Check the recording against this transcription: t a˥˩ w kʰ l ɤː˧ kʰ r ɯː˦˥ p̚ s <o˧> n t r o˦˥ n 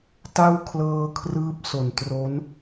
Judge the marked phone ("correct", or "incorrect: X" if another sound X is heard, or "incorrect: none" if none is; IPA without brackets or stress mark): incorrect: o˨˩